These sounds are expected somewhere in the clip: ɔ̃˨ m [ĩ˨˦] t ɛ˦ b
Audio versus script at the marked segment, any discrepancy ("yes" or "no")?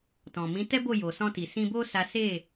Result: no